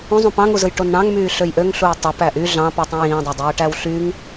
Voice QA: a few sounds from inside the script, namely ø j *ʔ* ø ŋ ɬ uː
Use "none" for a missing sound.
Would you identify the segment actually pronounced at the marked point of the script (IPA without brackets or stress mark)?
ʔ